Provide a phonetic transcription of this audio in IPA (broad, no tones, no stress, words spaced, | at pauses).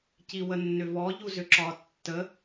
ciwənːʏvɔ ʎuzʏǁɒtːə